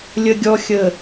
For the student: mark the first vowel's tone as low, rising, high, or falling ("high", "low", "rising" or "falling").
low